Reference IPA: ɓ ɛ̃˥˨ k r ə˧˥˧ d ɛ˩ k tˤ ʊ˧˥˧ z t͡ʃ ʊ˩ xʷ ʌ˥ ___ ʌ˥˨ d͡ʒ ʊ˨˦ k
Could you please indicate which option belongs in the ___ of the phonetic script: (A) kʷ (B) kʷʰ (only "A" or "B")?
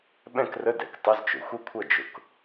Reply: B